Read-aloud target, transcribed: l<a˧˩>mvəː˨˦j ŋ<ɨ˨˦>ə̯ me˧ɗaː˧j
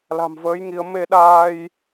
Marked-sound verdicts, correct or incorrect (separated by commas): incorrect, incorrect